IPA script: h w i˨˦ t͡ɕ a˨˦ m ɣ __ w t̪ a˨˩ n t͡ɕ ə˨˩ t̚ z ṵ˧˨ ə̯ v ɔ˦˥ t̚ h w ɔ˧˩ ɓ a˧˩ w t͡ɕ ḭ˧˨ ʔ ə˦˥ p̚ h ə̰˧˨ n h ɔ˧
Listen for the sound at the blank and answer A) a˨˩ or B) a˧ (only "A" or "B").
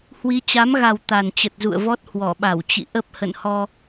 A